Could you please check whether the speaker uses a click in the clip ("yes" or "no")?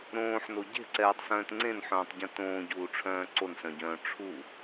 yes